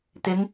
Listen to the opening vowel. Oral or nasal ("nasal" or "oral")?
oral